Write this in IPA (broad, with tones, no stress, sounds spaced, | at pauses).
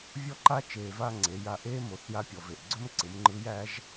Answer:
vʲ ɔ˥ ǃ a˥ t͡ʃ eː˧ v a˥ ŋ͡ǀ e˩˧ j a˧ ʔ eː˥ m o˩ θ j a˥ pʲ ɔ˩ v e˩ ʔ ɡ͡ǀ ɵ˥ m ǀ ɯ˩˧ m ŋ͡ǃ ɯ˧˥ j æː˧˥ ʒ